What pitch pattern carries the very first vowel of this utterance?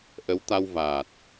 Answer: rising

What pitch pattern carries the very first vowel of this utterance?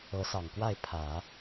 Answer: rising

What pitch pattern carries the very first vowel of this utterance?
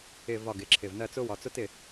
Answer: falling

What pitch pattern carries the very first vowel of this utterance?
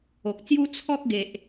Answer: low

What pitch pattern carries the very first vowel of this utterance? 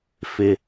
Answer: low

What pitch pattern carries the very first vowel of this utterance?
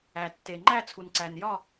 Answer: low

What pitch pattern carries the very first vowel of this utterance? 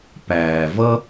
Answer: low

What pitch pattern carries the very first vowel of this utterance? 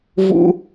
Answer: high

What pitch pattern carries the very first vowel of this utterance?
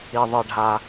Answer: low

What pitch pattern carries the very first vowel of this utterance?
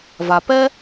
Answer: low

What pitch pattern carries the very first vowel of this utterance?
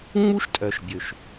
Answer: high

